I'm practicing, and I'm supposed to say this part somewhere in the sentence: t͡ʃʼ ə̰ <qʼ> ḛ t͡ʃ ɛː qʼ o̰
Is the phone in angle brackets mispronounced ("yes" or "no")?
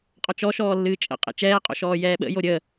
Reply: no